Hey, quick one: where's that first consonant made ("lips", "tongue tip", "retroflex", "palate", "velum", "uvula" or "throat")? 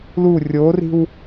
tongue tip